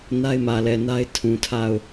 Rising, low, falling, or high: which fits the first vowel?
high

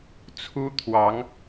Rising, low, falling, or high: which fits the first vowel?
high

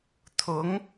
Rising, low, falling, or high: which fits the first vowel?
rising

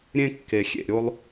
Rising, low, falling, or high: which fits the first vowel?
high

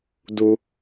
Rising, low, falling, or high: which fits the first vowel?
high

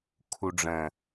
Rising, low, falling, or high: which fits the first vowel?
low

